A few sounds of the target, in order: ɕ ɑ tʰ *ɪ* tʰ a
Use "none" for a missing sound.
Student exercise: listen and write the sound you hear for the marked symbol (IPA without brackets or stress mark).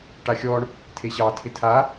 ɪ